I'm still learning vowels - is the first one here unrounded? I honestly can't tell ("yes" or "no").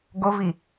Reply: no